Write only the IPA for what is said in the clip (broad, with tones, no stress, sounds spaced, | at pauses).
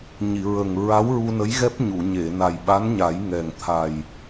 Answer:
ɲ i˨˩˨ ɹ ə˨˩ ŋ ɹ a˧˥ w ɹ u˧ n ə˧˥ j ɣ ɛ˦˥ p̚ ɲ u˨˩˨ ɲ e˨˩˨ n a˨˩ j ɓ a˧˥ n ɲ a˨˩˦ j ŋ ɛ˨˩ ŋ t̪ʰ a˨˩ j